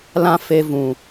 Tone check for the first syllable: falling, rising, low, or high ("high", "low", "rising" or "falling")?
high